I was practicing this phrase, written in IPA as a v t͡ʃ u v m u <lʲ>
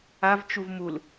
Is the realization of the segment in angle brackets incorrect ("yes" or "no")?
yes